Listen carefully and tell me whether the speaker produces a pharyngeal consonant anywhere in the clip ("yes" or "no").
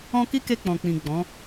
no